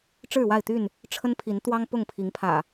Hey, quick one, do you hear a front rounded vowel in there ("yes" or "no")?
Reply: yes